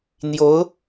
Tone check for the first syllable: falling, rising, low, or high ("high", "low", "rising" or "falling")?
rising